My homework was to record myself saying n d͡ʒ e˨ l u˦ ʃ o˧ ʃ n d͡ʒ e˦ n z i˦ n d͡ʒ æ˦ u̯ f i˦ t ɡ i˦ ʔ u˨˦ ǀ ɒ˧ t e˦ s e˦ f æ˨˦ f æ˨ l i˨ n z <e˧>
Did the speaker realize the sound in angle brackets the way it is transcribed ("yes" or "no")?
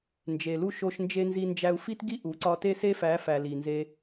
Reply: yes